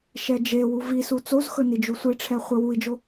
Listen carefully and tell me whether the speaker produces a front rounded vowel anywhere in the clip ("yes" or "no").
no